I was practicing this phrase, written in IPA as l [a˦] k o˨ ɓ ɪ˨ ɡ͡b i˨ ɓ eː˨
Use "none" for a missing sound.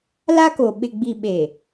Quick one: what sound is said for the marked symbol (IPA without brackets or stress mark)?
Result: a˦